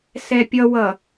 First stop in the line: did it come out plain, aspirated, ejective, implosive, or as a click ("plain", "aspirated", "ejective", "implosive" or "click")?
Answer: plain